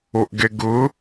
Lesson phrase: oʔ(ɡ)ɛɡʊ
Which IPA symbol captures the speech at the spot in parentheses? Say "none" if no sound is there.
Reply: ɡ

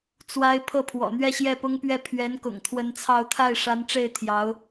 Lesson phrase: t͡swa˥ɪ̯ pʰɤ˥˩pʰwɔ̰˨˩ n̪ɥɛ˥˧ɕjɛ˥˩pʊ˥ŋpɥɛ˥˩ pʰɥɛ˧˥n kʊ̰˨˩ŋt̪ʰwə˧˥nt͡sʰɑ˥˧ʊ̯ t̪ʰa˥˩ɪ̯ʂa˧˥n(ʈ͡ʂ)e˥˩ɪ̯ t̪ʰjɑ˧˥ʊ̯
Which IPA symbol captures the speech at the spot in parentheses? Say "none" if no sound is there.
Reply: ʈ͡ʂ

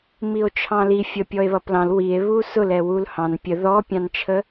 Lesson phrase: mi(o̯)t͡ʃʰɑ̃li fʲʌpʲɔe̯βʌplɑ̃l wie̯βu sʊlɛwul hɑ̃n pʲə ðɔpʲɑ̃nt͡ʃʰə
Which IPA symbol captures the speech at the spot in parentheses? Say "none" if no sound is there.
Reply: o̯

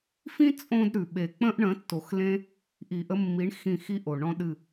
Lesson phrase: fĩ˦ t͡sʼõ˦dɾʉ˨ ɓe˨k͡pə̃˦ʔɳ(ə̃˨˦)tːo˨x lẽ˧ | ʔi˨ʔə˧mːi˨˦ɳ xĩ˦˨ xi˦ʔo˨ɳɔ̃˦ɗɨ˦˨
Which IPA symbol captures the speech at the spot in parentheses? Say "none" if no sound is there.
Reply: ə̃˨˦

